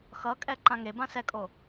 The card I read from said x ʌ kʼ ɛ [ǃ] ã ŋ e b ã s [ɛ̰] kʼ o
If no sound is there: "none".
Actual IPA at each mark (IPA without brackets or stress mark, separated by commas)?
ǃ, ɛ